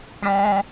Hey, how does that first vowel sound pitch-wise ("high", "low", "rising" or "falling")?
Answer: high